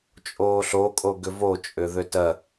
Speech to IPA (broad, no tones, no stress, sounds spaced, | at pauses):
t͡ʃʼ oː ɬ o kʼ o ɡ ʏ v o t͡ʃʼ ʏ ð ʏ t ɜ